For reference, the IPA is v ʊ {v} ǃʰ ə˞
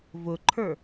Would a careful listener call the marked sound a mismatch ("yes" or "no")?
yes